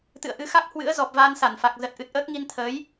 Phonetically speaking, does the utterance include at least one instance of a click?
no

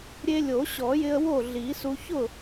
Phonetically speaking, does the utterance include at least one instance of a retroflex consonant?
no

